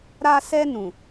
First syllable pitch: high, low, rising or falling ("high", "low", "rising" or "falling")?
high